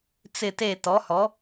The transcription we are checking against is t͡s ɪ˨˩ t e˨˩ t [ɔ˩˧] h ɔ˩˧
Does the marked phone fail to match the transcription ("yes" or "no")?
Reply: no